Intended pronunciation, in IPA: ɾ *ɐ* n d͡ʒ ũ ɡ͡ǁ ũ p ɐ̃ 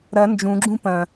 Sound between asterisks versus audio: correct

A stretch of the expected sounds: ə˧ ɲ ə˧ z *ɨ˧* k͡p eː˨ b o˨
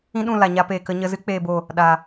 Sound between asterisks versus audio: correct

